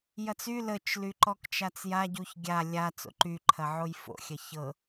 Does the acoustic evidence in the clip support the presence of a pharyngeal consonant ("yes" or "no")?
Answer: yes